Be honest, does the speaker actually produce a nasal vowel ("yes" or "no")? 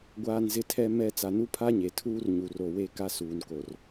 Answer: no